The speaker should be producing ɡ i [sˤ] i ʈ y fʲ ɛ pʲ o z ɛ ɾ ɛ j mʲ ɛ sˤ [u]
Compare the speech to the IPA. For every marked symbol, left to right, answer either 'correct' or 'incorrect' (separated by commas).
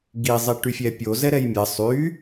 incorrect, incorrect